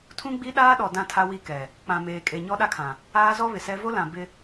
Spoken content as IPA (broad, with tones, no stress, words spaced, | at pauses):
tʰũ˦ɡ͡bi˦ɗaː˦ɗɔ˨ dã˦tʰa˦wi˦˨kɛ˨ | k͡pã˨meː˨kʼe˨ ɲɔ˦ɗa˦kʰã˨ | aː˦zɔ˦ βɪ˨sɛ˦ vo˦lã˨ bɪ˦